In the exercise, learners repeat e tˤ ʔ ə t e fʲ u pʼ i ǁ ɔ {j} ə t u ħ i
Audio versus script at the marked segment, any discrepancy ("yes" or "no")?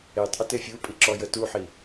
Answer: no